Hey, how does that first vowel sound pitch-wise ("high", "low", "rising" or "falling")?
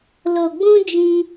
low